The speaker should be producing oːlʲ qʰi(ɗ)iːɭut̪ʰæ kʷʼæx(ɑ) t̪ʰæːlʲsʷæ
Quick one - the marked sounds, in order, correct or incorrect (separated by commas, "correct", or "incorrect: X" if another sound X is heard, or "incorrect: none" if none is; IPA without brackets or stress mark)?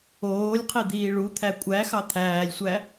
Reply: incorrect: d̪, correct